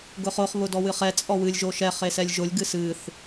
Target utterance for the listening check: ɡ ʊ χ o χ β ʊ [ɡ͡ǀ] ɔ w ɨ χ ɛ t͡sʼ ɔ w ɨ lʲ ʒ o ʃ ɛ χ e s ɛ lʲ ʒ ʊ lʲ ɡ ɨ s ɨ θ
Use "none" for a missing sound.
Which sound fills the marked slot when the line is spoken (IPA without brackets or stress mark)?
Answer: d